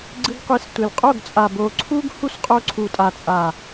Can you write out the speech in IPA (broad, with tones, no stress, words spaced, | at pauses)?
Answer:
ɡ͡ǀɯ˧ɡqʷi˨˦s tʷe˨lqʼo˦˨ɡt͡sʼa˨ bo˨ǀʰu˦ɡ hu˦sqʼo˧ǀʰu˨tʼa˨ t͡sʼa˨